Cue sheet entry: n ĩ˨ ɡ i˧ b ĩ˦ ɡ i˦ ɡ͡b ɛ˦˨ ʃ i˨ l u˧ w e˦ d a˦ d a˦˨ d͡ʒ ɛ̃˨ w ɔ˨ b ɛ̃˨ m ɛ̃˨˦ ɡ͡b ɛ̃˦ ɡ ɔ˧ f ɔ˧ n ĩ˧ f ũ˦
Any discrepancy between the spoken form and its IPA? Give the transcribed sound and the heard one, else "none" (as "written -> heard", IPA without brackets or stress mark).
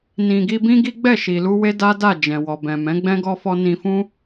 none